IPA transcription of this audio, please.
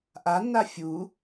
ʔ a nː a fʲ u

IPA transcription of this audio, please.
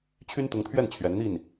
t͡ɕʰ y˥ n t̪ ʊ˧˥ ŋ t̪ʰ ɥ ɛ˥˩ n t͡ɕʰ ɥ ɛ˧˥ n n̪ i˥˩ n

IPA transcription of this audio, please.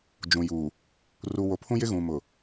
d͡ʒ ũ˨ j uː˨ | r u˨ w o˨ pʰ ũ˦ j ɪ˦ ɣ ũ˨ m ʊ˨

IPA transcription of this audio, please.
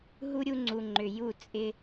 ɦ u˦ ɾʲ u˧ ŋ͡ǀ u˨ ŋ͡ǃ ʏ˨ j u˦˨ t͡sʼ ɪ˦

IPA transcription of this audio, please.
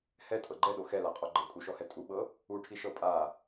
h ɛ tʼ ɤ ɡ͡ǃ ɛ ɗ o x ɛ l a qʼ ɔ ɡ͡ǃ ɤ kʼ u ʃ ɔ h ɛ tʼ u ɓ ɤ | u ʈʰ i ʃ ɤ pʼ a

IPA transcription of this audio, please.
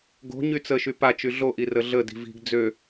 ɡ o̤ ɲ y t͡s ə ʃ y p a t͡ʃ y ɮ o ʔ i r ə ɮ ə d i̤ v i̤ ɡ d͡z ø

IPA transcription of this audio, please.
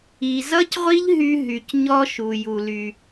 i˨ z ʌ˦ c ʁʷ i˦ ʎ ɦ y˧ ɦ y˨ c ɲ ɔ˦ ʃ u˨ j u˨ l y˨

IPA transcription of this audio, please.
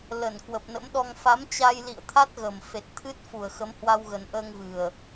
l ə˧˩ n k w ə˨˩ p̚ n ə̰˧˥ m ɗ ɔ˧ ŋ f a˨˦ m t͡ɕ a˧ j l ḭ˧˨ ə̯ t̪ʰ a˦˥ t̚ ɣ ə˨˩ m f e˨˩ t̚ t̪ʰ ɨ˦˥ t̚ f u˨˩ ə̯ x ə˨˦ m h w a˧ w ɣ ə˨˩ n ʔ əː˧ ŋ v ɨ˨˩ ə̯

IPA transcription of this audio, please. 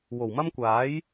w o˨˩ w m ɐ˥ m kʷ aː˨˥ j

